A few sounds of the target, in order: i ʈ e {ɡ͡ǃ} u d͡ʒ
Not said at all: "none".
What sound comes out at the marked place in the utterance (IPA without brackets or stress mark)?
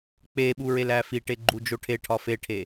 ɡ͡ǃ